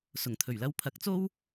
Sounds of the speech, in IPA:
s ʊ˨˩ ŋ t̪ʰ ɵ˨˩ ɥ l ɐ˧ w pʰ ɐ˨˥ k̚ t͡s o˥ w

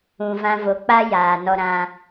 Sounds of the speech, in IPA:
ũ˧ v ã˦ v o˧ k͡p a˦ j aː˨ n ɔ˧ ɾ ã˧

